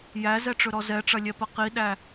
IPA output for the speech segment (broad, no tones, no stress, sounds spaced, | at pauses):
j æ z ɛ ʈ͡ʂ ɵ ɾ ɔ z ɛ ʈ͡ʂ ɐ lʲ ɛ p ɐ q i ɗ æ